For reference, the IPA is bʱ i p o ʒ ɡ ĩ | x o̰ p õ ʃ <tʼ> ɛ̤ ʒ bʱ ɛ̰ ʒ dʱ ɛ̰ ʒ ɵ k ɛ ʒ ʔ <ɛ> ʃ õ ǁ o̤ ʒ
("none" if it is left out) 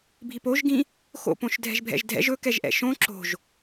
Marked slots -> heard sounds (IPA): dʱ, ɛ̰

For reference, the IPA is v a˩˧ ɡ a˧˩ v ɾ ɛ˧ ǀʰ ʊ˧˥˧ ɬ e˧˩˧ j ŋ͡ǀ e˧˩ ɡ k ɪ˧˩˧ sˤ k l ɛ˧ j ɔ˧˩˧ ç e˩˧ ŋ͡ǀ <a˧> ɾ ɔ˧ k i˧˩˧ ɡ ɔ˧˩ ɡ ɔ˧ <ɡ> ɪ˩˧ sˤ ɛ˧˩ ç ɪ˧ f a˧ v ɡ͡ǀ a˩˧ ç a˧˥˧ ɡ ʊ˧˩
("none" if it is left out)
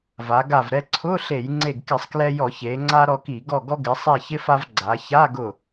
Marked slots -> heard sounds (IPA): a˧, ɡ

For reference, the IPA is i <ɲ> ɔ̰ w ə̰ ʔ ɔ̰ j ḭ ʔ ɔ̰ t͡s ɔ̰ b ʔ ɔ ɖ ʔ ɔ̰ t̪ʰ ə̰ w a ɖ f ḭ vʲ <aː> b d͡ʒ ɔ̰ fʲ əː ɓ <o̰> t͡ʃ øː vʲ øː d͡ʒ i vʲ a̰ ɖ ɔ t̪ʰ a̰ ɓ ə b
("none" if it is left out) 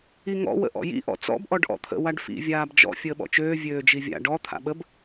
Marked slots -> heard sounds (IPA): ŋ, aː, ɔ̰

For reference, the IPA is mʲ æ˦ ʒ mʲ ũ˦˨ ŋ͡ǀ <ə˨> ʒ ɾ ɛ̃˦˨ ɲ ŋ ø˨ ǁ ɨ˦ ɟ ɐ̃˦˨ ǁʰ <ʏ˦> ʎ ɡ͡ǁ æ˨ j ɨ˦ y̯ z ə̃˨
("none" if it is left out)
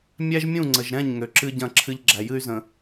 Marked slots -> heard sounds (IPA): ə˨, ɨ˦

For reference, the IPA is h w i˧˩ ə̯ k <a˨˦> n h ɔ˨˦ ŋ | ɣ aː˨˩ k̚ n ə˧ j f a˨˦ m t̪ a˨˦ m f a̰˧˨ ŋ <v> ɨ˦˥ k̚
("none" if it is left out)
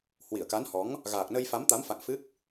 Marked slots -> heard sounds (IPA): a˨˦, f

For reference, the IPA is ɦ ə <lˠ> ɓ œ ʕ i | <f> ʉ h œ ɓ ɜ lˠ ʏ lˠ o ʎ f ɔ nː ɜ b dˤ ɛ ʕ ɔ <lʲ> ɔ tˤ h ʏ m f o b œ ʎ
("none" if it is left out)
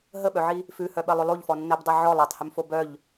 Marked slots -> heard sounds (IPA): none, f, lˠ

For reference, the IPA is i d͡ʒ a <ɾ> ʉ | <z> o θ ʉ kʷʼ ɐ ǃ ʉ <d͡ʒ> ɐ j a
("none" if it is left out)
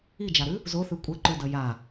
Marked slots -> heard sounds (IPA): ɾ, z, d

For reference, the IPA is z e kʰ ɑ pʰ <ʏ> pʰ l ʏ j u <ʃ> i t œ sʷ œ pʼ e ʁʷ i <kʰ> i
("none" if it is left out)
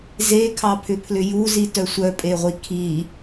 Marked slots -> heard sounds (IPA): ʏ, z, kʰ

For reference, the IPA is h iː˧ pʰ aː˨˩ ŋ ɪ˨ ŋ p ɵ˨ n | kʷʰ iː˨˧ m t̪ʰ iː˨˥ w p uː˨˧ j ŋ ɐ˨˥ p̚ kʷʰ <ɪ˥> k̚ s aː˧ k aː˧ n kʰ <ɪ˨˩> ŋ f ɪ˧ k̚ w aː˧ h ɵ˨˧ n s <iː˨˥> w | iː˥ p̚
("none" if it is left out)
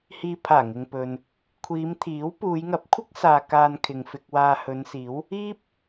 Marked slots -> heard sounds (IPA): ɪ˥, ɪ˨, iː˨˥

